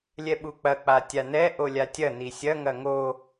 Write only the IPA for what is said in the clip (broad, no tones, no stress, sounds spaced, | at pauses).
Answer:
lʲ ɛ ɓ u k͡p ɐ k͡p a tʲ a n ɛ ʔ o lʲ a tʲ ɐ n i sʲ ɐ ŋ ɐ ŋ o